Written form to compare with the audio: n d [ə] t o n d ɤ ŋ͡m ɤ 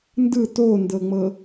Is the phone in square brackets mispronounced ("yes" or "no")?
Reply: yes